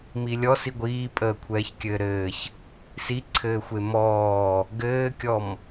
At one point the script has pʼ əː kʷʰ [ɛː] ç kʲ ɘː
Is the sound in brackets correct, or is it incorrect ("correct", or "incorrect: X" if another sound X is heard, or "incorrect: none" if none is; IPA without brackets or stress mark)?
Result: correct